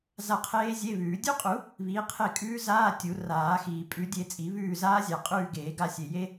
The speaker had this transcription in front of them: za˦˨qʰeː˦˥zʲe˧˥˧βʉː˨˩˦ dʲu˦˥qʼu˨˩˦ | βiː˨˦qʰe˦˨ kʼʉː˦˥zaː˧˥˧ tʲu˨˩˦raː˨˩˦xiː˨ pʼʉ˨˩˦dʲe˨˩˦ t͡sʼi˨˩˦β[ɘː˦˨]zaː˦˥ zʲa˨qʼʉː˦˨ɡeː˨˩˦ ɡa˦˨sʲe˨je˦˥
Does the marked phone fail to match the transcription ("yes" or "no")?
yes